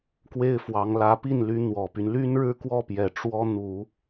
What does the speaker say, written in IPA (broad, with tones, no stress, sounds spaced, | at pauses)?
k w e˥ ɪ̯ f w ɑ˧˥ ŋ l ä˧˥ p i˥˩ n l y˧˥ n̪ w ɔ˨˩ p y˦ n l y˥ n ɻ ɻ̩˥ k w ɔ˥˩ p j ɛ˨˩ ʈ͡ʂ w ɔ˥ n̪ u˨˩˦